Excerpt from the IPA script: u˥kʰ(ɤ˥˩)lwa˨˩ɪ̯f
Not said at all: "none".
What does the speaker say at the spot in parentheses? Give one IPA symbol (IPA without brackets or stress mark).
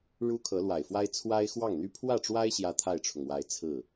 ɤ˧˥